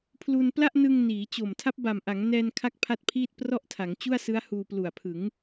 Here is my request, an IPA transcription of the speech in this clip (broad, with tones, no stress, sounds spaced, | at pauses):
pʰ l u˧ n p l a˥˩ ʔ n ɯ˧ ŋ n iː˩˦ t͡ɕ o˨˩ m tʰ a˦˥ p̚ b a˨˩ m ʔ a˩˦ ŋ n ɛː˧ n kʰ a˥˩ k̚ pʰ a˥˩ t̚ pʰ iː˥˩ t̚ p r ɔ˥˩ ʔ tʰ a˩˦ ŋ t͡ɕ u˥˩ a̯ s ɯ˦˥ a̯ h uː˧ p l u˨˩ a̯ pʰ ɯ˩˦ ŋ